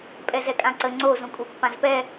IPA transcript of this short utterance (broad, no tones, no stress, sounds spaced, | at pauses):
pʼ ɛ z ɛ kʼ ã ǀ ə ŋ͡ǀ o z ũ kʼ u pː ã z p ɛ